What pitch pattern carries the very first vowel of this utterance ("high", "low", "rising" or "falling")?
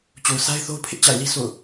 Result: low